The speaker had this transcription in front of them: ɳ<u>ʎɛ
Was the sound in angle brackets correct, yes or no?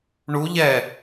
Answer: yes